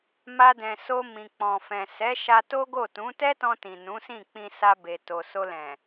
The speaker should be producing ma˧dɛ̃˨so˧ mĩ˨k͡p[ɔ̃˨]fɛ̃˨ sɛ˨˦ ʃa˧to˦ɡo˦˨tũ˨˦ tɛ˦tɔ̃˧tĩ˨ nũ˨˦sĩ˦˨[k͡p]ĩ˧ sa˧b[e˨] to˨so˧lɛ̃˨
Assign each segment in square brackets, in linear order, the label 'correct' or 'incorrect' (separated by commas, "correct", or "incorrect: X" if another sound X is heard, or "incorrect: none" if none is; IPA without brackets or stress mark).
correct, correct, correct